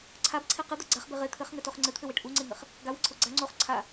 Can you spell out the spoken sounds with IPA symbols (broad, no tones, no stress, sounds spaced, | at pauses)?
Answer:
ǀʰ a b ǀʰ e q ɘ d̪ a ɡ͡ǀ a χ b e ʁ e t̪ʰ ɘ χ ŋ ɘ t o χ ŋ͡ǀ ɘ t̪ʰ ɘ w e ʈ ʔ u ŋ͡ǀ e ŋ ɘ χ | ɡ a w ɘ ǀʰ o ɡ͡ǀ a ŋ͡ǀ o χ ǀʰ a